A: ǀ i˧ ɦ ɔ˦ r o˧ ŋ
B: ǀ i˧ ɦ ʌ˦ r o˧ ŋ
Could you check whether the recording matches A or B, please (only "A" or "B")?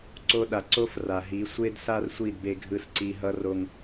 B